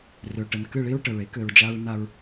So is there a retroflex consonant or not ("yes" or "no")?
yes